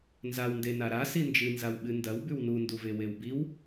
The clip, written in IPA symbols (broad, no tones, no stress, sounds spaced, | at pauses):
n z a w n d e n a ɾ a s i n d͡ʒ ɨ n z a w ɓ ɨ n d ɐ w b ʉ w n u n d u v e w e w b i w